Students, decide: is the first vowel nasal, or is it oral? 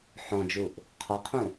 nasal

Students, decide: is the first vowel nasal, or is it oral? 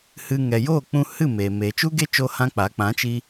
oral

